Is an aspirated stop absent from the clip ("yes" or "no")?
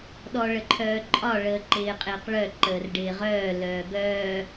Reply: no